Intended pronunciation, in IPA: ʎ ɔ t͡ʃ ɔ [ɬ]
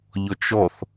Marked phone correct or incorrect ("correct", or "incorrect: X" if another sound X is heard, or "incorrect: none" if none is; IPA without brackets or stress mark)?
incorrect: θ